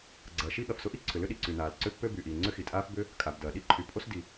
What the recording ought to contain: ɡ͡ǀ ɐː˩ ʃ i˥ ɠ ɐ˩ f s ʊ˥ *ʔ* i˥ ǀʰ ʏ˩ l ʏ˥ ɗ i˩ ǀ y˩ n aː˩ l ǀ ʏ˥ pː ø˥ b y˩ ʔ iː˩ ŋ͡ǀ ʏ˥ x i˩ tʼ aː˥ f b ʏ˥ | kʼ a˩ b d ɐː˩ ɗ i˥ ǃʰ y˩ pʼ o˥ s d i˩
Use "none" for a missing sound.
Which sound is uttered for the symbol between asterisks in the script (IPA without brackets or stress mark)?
ʔ